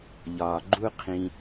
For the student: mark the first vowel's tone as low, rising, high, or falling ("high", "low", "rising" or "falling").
low